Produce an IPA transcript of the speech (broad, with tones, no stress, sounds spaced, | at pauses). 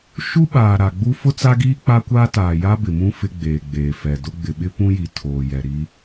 ʃ u˦ ɓ aː˨ ɾ a˨ ɡ͡b u˦ f ʊ˦ t͡s a˦ ɡ iː˦ k͡p a˦ kʷ aː˦ t aː˨ j a˦ b ɪ˨ m ũ˦ f ɪ˦ ɡ͡b eː˨ ɡ͡b eː˨ f ɛ˨ d ʊ˦ ɡ͡b ɪ˨ ɓ ɪ˦ p ũ˦ j i˨ tʰ oː˨ j ɛ˨ ɾ i˦